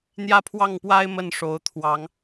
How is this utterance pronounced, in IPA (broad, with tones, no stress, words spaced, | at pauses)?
n̪jä˦pʰwɑ˥˨ŋpwa˦ɪ̯ mə˥˨nʂo˨˦ʊ̯t̪ʰwɑ˨˦ŋ